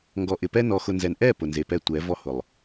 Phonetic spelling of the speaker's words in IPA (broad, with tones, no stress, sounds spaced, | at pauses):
ŋ ɡ ɔ˨ ʔ ɪ˨ p ɛ˦ n ɔ˨ x ʊ˨ n z ɛ˨ n ʔ ɛ˦˨ p ʊ˨ n z e˨ p ɛ˦ tʷ ɛ˨˦ v ɔ˦ h ʊ˨ lˠ